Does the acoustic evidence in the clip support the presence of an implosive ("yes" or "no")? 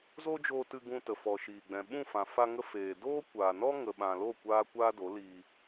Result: yes